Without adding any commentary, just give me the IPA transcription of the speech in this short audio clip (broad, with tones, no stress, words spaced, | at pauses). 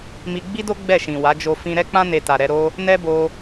mi˧ ɡ͡bi˦do˦ ɡ͡bɛ˦˨ʃĩ˨wa˨˦d͡ʒo˧ fĩ˧ ɾɛ˦k͡pã˦ ne˧ta˨ɾɛ˧ ɾo˦ | nɛ˦bo˧